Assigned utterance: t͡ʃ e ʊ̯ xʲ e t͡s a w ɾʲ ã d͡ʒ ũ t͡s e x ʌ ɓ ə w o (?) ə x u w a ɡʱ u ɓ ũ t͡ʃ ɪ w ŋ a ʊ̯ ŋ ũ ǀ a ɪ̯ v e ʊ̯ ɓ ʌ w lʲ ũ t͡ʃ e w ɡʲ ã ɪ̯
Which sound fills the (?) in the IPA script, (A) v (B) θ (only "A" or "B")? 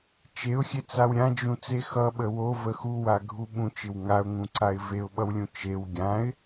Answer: A